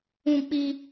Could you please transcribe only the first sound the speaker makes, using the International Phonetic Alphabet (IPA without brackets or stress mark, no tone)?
ũ